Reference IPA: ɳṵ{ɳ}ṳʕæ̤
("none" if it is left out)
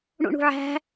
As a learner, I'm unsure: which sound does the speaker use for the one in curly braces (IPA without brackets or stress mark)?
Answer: ɳ